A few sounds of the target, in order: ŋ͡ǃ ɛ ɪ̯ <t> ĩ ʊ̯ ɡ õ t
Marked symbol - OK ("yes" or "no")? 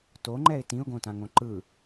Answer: yes